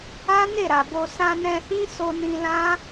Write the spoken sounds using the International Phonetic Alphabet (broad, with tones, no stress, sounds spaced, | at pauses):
a˦ n e˦˨ ɾ a˨ b o˧ s ã˧ n ɛ̃˧ h ĩ˦ s o˧ n ĩ˧ l ã˦